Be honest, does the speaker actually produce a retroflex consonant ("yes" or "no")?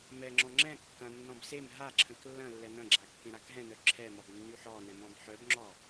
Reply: no